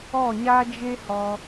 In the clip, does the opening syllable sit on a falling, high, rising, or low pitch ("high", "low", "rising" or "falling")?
falling